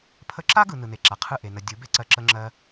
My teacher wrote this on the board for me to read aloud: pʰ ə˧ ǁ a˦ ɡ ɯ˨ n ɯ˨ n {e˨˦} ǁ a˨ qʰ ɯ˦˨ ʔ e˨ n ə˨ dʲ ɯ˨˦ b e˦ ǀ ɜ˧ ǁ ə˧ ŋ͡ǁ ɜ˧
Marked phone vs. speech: incorrect: e˨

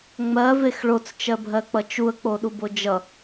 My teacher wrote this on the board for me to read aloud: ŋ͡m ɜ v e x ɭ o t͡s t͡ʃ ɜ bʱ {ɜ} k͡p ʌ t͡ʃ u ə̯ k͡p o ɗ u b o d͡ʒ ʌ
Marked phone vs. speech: correct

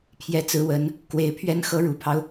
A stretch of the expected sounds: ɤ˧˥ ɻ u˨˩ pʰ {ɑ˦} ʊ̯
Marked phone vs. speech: correct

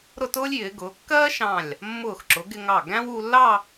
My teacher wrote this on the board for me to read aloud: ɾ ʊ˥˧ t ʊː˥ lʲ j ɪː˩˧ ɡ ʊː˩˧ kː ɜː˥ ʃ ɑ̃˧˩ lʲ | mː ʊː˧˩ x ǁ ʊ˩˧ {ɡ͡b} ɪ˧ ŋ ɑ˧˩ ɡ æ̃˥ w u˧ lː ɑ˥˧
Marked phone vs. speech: incorrect: ɡ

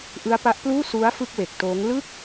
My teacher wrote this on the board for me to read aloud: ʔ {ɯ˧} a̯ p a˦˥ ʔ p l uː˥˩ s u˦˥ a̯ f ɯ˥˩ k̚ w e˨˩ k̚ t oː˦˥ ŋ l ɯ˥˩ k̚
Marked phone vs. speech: incorrect: ɯ˦˥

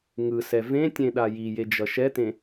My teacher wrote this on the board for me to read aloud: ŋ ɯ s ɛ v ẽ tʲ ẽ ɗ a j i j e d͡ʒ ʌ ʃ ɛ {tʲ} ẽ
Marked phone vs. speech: incorrect: t̪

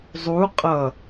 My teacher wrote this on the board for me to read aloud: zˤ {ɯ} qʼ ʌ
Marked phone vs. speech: incorrect: u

